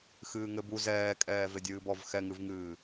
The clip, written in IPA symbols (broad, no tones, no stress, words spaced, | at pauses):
xɨːŋɘbu zɛː kʼɛːvedʲɨːbɔv xɛŋɨvŋɨː